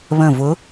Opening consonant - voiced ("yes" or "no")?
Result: yes